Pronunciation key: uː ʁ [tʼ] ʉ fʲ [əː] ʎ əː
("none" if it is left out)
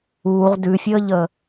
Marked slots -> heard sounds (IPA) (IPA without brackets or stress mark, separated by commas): d, əː